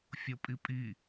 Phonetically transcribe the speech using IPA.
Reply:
fʲopʼipʼi

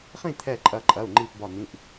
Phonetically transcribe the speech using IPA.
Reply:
χĩ˥˨t̪ʰɛ˧˩ ǃʼɐ˧˩ǃʼɐ˩˧˩u̯ ŋ͡ǃi˧˩pbɒ˧˩n̪ĩ˩˧˩ʔ

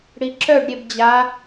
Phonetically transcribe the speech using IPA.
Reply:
ɽiǁœɖ ɾʲebd͡ʑa

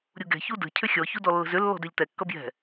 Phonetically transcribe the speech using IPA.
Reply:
ɾʲuɡɛ̤ çudə̤ cʰʏxʲɔ çudɔlːə̤zʏ lːɔ̤dɛʎtɛ kːʌbjɛ̤

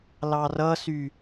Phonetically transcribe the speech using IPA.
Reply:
lɑrʌsy

